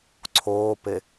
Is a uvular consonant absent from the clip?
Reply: yes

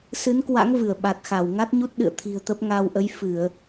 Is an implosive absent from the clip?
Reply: no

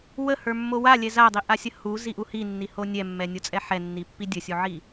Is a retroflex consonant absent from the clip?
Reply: yes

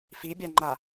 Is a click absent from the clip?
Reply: no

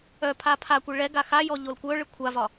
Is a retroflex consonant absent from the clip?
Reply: no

